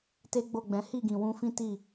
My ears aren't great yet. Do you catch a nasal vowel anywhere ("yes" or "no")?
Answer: yes